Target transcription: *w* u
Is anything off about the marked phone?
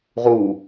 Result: yes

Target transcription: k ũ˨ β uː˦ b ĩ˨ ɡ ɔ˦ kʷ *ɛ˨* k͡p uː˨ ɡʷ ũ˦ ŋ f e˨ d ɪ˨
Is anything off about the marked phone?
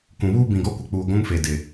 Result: yes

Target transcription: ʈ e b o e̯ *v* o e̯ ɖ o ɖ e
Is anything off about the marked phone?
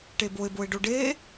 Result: yes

